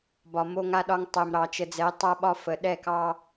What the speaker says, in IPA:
bɒ˨mo˦ŋa˦ɗɒ˦ŋ tˤɛ˨mɾɑ˨ t͡ʃə˨d͡zɛ˨˦ tˤa˦ɓɒ˦fə˨ ɗɛ˦˨kɑ˦

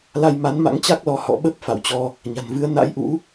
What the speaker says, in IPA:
la˧jma˨˦nma̰˧˥ŋ t͡ɕa˦˥k̚lɔ˧ hɔ̰˧˨ɓə˦˥p̚ fa̰˧˨wt͡ɕɔ˧ | ɲa̤˨˩nvɨ˨˦ə̯ na̰˧˥jʔṵ˧˥

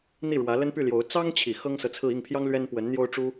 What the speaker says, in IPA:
n̪i˥˩ɻwä˧˥ lə˥npy˥˩ljo˧˥ʊ̯ t͡sɑ˥ŋt͡ɕʰi˨˩ xɤ˥ŋsɤ˨t͡sʰɹ̩˥˧ i˥˩ŋpʰjɑ˥ŋlɥɛ˥n pwə˧˥nn̪jo˥ʊ̯ʈ͡ʂu˥

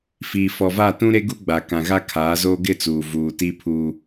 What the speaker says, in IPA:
fiː˨fɔ˨va˦˨ tũ˦ɾe˦ɡu˦ɡ͡ba˨ kã˨ɣa˦kʰaː˨˦zoː˦ ɡɪ˦˨t͡suː˨ vuː˨ti˦pʰu˦

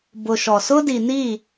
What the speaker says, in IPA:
bʊ˨ʃɔ˨ sʊ˦di˨ni˦˨

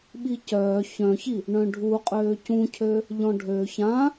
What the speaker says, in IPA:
ɓicœː çœ̃çi | ɳœ̃ɖʱuqʼøː cũcʰø | ʎɔ̃ɖʱø çã

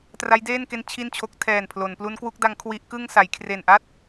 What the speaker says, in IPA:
tra˦˥jdeː˥˩n ke˧n t͡ɕʰi˥˩nt͡ɕʰo˦˥k̚ tʰɛː˨˩npʰlo˩˦n plu˦˥nkwu˦˥k̚da˦˥ŋ kʰwi˦˥ʔkɯ˥˩ŋ sa˩˦jkʰre˨˩nʔa˥˩t̚

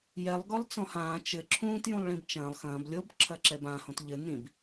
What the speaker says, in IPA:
jɛlˠ ɡɔlˠt͡sɔ̃hãː t͡ʃɘ ǁʰũːt jũlˠɭĩbt͡ʃɐ̃ːlˠ xɐ̃ːb lʲob ǁʰɐǁɛbã hõtʎɘ nĩb

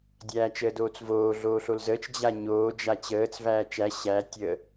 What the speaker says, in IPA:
dʲæːt͡ʃəːdoːt͡svoː ɮoːɬolzəːt͡ʃ d͡ʑaɲoː d͡ʒat͡ɕəːt͡s væːt͡ʃæ ɕæ tʲə

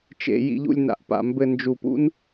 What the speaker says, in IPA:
t͡ʃḛ˨ jḭ˨ʎṵ˨lʲ na̰˨ʔpa̰˨ mbɘ˨ nd͡ʒu˨pṵ˦n

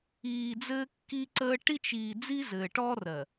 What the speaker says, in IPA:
iː˨d͡zɘː˦kːi˦ǀəː˦ ʈi˦t͡ʃiː˨ d͡zi˦zɘː˨ʈɔ˦rɜ˨

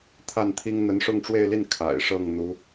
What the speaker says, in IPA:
t̪ʰa˥˩nt̪ʰi˥ŋ n̪ə˧˥nʂʊ˥˧ŋʈ͡ʂwe˥˧ɪ̯li˥˩n kʰa̰˨˩ɪ̯ʂɤ˥˩ŋ n̪u˧˥

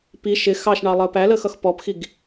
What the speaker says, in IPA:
pi ʃɪ xɑʃɳɑ lˠəːpæləːx ʌxpɔpxiɡ

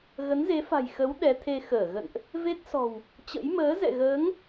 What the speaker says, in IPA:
ɣə˨˦nze˨˦fa̤˨˩jxə˨˦w ɗɛ˨˦t̪ʰe˧ xəː˧˩ɣə̰˧˨nʔ | ve˦˥t̚sɔ̤˨˩w | t͡ɕə̰˧˥j məː˨˦zɛ̰˧˨ɣəː˨˦ŋ

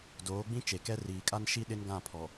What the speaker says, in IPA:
doː˨˦ɡ͡bĩ˦ t͡ʃe˨kɛ˦ riː˨kʼa˦nʃi˦ ɗɪ˦nɡã˦˨pʰɔ˨

